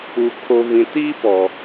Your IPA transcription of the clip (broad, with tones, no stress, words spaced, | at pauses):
u˨ kʰo˨vĩ˨tiː˦pɔ˨